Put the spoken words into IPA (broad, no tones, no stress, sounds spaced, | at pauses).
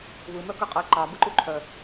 β ɯ m œ k ɯ qʼ ɨ ǃ ɑ b ɯ ǃ u ǃʰ œ